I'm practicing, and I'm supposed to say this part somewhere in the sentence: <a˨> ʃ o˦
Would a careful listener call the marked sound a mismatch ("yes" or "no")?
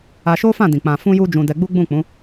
yes